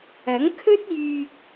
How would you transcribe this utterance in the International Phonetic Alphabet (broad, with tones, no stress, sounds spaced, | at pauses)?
ɐ˨˥ ŋ kʰ ɵ˥ t̚ j yː˧ k̚